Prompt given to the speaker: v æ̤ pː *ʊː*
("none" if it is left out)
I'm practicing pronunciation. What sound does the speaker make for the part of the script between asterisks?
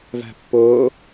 ʊː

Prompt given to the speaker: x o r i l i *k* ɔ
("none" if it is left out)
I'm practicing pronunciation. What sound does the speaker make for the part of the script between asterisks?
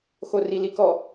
k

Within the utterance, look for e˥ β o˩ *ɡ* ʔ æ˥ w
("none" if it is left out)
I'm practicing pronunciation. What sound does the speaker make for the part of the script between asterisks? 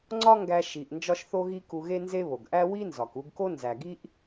ɡ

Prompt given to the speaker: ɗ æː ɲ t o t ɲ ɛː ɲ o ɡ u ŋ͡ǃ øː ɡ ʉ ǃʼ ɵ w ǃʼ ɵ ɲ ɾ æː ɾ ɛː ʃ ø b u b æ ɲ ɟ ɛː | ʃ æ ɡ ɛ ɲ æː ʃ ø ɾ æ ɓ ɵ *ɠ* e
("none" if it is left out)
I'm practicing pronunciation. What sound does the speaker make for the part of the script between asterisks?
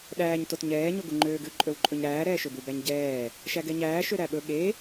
ɠ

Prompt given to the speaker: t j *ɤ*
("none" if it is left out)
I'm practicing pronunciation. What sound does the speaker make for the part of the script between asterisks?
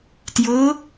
ɤ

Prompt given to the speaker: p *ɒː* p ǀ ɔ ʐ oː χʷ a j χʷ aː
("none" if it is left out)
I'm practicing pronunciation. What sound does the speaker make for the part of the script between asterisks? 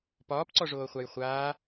ɒː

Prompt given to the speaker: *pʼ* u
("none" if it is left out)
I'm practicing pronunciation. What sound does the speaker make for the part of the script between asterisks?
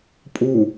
pʼ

